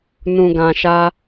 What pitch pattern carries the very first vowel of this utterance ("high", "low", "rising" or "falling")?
low